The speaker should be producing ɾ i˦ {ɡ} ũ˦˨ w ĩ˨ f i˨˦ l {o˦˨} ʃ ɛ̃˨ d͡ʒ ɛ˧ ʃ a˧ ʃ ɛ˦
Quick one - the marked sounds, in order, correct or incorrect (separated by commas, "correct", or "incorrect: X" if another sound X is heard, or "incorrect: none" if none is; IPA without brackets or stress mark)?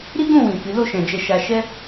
correct, correct